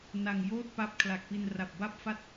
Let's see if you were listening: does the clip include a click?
no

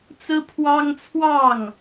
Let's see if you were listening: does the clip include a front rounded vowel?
no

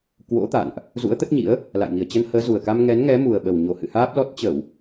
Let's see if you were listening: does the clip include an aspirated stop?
no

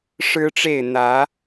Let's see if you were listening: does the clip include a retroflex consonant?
yes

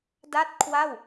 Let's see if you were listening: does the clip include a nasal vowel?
no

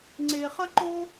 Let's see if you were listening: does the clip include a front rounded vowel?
no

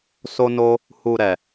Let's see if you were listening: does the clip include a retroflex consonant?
no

